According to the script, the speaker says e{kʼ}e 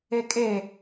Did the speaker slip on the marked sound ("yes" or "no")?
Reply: no